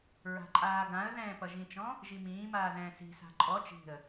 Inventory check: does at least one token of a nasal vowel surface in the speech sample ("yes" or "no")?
yes